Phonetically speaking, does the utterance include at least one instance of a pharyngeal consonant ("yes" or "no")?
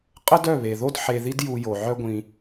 yes